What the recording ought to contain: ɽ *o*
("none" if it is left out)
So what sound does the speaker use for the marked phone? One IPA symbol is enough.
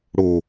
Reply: o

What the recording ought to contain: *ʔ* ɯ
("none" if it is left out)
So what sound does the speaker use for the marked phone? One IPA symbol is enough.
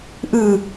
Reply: ʔ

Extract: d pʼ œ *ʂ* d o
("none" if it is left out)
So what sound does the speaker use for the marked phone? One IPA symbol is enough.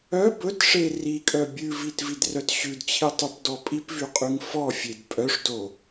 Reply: ʂ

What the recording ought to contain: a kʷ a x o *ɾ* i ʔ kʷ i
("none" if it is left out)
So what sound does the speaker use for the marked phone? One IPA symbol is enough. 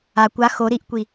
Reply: ɾ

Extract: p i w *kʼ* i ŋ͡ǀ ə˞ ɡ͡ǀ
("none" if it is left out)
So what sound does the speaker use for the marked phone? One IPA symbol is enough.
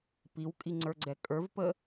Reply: kʼ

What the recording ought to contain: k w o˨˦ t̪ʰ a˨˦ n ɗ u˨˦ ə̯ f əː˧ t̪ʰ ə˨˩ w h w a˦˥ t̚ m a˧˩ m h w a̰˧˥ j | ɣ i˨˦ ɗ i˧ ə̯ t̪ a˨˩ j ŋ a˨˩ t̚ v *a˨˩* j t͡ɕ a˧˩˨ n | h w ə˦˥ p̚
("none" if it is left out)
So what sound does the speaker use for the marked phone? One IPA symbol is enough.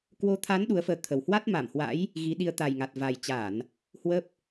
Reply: a˨˩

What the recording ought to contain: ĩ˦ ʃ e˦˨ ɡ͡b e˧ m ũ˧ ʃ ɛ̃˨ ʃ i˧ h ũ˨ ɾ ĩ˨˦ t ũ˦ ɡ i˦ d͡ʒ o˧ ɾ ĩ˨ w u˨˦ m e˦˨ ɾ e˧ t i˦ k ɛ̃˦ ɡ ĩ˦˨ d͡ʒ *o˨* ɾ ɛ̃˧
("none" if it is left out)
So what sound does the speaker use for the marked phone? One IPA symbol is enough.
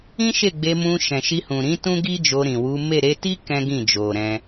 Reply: o˨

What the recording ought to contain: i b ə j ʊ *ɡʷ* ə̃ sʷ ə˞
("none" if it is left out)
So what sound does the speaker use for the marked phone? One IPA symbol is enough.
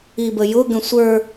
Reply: ɡ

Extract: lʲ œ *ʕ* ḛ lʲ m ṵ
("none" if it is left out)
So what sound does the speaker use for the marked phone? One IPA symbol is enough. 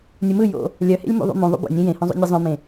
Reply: h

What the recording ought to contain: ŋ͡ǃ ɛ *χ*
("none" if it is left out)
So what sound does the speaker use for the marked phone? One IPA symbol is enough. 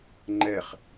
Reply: χ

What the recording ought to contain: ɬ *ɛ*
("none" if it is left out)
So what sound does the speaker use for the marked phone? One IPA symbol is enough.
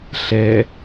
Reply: ɛ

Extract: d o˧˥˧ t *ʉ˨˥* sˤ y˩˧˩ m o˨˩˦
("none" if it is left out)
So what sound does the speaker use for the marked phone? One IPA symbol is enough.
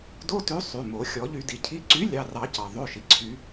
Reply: ʉ˨˥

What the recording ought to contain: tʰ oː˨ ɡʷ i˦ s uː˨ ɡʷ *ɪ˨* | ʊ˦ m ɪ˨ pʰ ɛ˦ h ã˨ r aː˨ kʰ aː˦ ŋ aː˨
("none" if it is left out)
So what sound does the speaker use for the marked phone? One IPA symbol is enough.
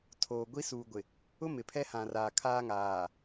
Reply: ɪ˨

